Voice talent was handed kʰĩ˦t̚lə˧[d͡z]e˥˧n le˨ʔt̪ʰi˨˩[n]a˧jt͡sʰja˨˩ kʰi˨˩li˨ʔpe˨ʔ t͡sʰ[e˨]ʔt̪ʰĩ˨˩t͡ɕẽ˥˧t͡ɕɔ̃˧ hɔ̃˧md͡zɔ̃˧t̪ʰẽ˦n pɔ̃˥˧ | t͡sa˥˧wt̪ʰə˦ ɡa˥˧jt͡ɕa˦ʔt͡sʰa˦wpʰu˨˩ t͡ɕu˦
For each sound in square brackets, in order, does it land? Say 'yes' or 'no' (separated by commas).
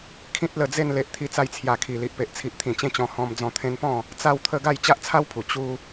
yes, no, no